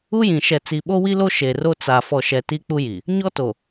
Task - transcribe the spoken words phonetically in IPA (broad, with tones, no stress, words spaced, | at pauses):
u˦jĩ˨ ʃɛ˨t͡si˨ɓo˦ wi˦lo˦ ʃe˨ro˦ t͡sa˨ fɔ˨ʃɛ˨ ti˦k͡pu˦ji˨ | ɲɔ˦to˨